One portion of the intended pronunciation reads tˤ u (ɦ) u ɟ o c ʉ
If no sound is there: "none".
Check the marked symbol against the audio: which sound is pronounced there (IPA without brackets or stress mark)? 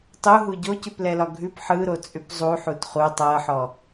ɦ